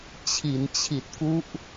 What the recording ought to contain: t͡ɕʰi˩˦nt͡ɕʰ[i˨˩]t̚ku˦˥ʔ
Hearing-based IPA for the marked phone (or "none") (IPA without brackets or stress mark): i˨˩